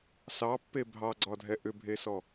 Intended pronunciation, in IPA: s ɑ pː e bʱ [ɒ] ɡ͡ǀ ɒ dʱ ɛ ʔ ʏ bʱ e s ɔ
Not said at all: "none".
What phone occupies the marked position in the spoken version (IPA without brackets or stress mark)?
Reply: ɑ